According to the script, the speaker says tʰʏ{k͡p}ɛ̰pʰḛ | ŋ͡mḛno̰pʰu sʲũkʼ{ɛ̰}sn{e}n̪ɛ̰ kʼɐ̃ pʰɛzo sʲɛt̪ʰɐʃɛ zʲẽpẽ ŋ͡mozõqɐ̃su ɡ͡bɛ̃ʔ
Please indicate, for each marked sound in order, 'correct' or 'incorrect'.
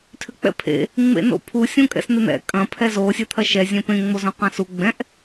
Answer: correct, correct, correct

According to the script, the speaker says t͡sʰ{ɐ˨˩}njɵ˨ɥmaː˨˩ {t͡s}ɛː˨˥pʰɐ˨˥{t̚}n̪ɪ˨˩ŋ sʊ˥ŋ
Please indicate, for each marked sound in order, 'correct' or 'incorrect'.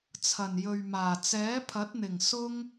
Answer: correct, correct, correct

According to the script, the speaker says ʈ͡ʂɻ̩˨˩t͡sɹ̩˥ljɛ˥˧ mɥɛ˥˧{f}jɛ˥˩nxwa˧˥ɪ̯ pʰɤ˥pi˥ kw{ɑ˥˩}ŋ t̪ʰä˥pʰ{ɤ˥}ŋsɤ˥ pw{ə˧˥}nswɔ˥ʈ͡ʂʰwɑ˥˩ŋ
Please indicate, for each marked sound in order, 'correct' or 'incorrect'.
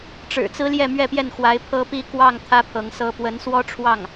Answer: incorrect, correct, incorrect, correct

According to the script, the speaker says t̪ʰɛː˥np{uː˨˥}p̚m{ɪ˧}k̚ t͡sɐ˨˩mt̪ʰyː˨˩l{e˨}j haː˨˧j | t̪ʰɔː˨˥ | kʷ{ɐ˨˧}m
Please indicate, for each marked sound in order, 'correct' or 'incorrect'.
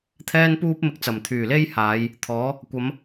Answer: incorrect, correct, incorrect, correct

